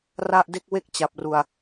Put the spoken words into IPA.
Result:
r a˥˩ ʔ d e˥˩ k̚ w e˥˩ k̚ t͡ɕ a˨˩ p̚ r u˨˩ a̯

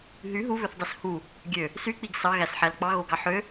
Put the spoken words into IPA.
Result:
ɦ y ɦ u β ø θ dˤ e s h u | ɡʲ ø | s y k͡p i ɡ s ɑ ɣ æ s ħ æ l k͡p ɑ ɣ o ɡ ɑ ħ ø

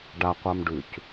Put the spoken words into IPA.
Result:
ɖ a qʷ a m ɖ ʉ c

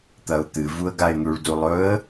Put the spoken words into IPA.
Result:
t̪ ɐ ʊ̯ t̪ ɨ v u ə̯ ɡ a ɪ̯ n̪ u ɭ d u lˠ ɵ ə̯

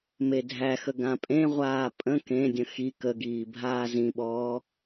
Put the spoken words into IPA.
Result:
m e dʱ æ x ə ɡ ã pʼ ẽ ʁʷ aː pʼ ə̃ k ẽ dʲ ə̃ x i k ə ɡ iː bʱ aː z ĩ ɓ ɔː

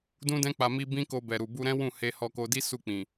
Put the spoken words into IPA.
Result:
d ũ˦ d ɛ̃˦ k͡p a˧ m i˧ b ĩ˦ k o˧ b ɛ˨ ɾ u˨ b u˧ ɾ ɛ̃˦ w ũ˦˨ h e˧ h ɔ˧ k o˧ d i˦ s u˦˨ k͡p ĩ˨

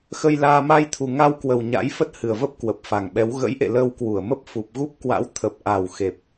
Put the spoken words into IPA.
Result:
x ə˧ j l aː˧ m a˧ j t̪ʰ u˨˩ ŋ a˧ w k w ə˨˩ w ɲ a̰˧˥ j f ə˦˥ t̚ h ɨ˨˩ ə̯ v ə˦˥ p̚ k w ə˨˩ p̚ f a˨˩ ŋ ɓ ɛ˨˦ w ɣ ə̰˧˥ j ʔ ḛ˧˨ l əː˧ w k w u˧˩ ə̯ m ə˦˥ p̚ f u˨˩ p̚ ɣ u˦˥ p̚ k w a̰˧˥ w t̪ʰ ə˨˩ p̚ ʔ a˨˩ w x e˨˩ p̚

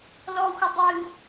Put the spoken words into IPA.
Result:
l ɔ xʷ ə dˤ ɨ

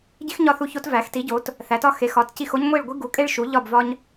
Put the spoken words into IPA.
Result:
ɟ i˦ x ɲ ɒ˦˨ θ u˦˨ ç o˦ t v æ˨˦ x t i˨˦ ɟ o˨˦ t | θ æ˨˦ t ɒ˦ x e˨˦ x ɒ˨˦ t c i˦˨ x o˦ ɲ ŋʷ i˦˨ ɭ ɡʷ i˦ ɡ u˨˦ kʼ e˦ ɭ ʃ u˨˦ ʎ ɒ˦˨ b v ɒ˦ ɲ

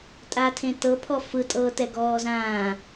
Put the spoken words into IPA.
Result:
tʼ a tʰ ẽ t ɤ pʰ ɔ f ɯ tʼ ɤː t ɛ ɡ ɔː z ãː

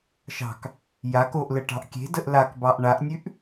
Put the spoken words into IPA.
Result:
ʃ ɑ̤ k | j a k o ʔ l ə ʈ ɑ̤ ʔ kʲ e̤ d ə ʔ l a k b ɑ ʔ ɳ a ʔ nʲ ʉ ʔ

